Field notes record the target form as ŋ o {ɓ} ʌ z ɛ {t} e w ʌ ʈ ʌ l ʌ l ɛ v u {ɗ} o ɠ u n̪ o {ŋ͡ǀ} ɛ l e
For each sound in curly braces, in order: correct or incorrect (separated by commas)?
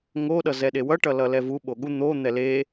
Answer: incorrect, incorrect, incorrect, incorrect